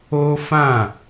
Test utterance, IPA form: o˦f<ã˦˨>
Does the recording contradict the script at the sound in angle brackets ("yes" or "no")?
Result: no